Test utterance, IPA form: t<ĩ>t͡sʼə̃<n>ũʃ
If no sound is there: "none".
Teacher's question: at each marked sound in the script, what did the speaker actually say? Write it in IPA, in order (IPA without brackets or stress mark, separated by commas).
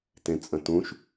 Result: ẽ, t